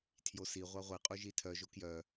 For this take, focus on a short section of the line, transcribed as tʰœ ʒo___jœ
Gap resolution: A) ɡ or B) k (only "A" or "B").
B